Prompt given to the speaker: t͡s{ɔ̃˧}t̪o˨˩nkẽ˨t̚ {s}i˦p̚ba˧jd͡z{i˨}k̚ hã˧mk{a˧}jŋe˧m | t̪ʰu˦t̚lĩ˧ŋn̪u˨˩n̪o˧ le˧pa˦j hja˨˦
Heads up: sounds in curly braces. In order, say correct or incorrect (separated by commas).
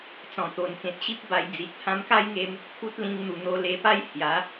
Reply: incorrect, incorrect, correct, incorrect